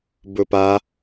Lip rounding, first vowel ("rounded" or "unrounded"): rounded